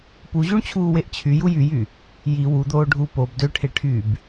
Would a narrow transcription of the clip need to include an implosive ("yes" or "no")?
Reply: no